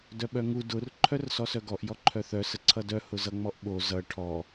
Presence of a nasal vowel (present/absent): absent